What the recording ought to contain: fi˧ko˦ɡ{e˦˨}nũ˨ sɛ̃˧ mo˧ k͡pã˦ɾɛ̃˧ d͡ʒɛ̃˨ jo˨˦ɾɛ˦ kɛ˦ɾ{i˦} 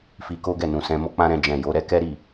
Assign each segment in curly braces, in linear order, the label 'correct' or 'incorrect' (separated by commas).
incorrect, incorrect